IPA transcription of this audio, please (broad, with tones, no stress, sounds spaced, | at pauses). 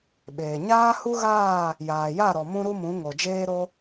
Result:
ɓ eː˨ ɲ aː˦ h u˦ ɣ aː˦˨ | j aː˨ j a˦˨ ɾ ɔ˨ m ũ˦ ɾ u˦ m ũ˨˦ ŋ o˨ d͡ʒ eː˦ ɾ o˦